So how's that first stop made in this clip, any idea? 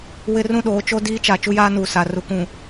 implosive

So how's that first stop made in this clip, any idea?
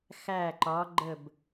click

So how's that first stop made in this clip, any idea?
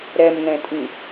ejective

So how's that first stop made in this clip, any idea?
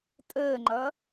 ejective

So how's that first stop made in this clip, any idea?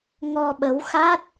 implosive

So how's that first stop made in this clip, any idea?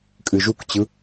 ejective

